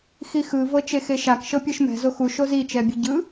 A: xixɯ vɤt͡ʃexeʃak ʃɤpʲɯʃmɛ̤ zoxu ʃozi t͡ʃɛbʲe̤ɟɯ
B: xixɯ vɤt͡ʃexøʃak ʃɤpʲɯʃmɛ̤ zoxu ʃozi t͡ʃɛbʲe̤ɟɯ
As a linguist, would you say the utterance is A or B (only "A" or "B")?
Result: A